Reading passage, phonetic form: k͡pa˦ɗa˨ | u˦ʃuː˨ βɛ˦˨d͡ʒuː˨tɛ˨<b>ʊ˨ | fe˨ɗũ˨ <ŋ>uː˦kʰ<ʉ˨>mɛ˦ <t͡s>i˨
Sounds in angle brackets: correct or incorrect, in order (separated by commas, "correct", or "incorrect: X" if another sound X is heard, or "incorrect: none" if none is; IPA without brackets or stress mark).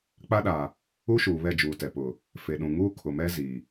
incorrect: p, correct, incorrect: ʊ˨, incorrect: z